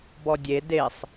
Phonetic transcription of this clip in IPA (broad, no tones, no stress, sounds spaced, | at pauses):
b ɔ dʲ e d e sˤ